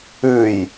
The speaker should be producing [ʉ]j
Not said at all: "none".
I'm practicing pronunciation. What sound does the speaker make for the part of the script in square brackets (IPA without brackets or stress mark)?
ʉ